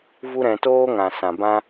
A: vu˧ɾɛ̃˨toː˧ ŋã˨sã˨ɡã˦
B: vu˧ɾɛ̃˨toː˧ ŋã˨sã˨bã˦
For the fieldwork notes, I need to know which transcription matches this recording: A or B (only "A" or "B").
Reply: B